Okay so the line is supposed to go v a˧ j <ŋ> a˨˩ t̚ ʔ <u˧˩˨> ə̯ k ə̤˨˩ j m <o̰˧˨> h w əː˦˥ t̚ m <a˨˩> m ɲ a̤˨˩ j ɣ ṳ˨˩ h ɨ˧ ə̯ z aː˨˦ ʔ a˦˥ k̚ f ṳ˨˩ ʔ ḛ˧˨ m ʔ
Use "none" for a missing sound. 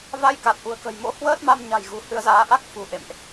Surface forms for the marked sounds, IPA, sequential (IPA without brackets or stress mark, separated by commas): k, ṳ˨˩, o̰˧˥, a˧